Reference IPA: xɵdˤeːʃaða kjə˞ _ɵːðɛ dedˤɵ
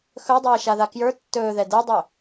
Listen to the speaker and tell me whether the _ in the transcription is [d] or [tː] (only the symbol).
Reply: tː